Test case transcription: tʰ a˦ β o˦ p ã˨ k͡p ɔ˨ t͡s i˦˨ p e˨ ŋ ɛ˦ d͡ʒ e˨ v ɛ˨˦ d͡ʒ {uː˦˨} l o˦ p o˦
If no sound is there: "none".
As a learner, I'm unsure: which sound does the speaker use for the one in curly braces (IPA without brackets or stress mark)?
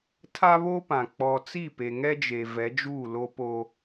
uː˦˨